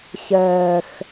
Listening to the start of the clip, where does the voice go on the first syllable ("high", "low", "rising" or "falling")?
low